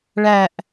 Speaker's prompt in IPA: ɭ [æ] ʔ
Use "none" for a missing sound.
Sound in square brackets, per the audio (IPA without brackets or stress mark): æ